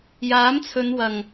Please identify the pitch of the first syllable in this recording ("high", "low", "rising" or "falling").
rising